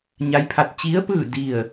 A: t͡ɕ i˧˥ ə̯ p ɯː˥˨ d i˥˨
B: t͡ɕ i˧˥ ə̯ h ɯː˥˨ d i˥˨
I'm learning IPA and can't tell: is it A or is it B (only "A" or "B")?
A